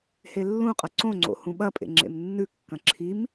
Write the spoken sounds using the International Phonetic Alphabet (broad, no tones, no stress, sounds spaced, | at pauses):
h e lː ũ qʼ ɐ ǀ õ ŋ͡ǀ o̰ h ũ ɓ ɐ pʼ ḛ ŋ͡ǁ ḛ m nː ʉ kː ɐ̃ ǁʰ i m